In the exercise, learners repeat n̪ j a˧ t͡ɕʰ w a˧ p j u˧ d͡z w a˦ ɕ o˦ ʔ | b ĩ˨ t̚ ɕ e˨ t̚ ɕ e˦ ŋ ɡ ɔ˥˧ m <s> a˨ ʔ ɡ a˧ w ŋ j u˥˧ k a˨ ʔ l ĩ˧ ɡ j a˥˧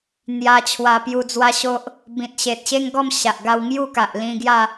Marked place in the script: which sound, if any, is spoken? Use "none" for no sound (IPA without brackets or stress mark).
ɕ